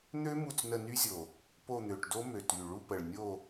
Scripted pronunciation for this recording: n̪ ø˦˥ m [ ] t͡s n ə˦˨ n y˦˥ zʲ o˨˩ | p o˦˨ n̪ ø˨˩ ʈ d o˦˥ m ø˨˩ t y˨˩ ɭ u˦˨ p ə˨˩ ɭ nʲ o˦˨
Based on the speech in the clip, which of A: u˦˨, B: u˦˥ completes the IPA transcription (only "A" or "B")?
A